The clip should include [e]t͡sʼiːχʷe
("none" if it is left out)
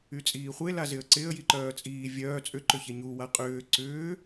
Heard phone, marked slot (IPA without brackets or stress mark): y